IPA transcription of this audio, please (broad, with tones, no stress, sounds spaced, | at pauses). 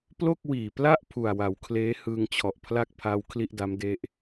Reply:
p l o˥˩ k̚ w iː˨˩ p l a˥˩ ʔ pʰ u˨˩ a̯ w a˩˦ w kʰ l eː˦˥ h ɯː˧ ŋ t͡ɕʰ ɔ˨˩ ʔ pʰ l a˥˩ k̚ pʰ aː˦˥ w kʰ l i˥˩ ʔ d a˦˥ m d e˦˥ ʔ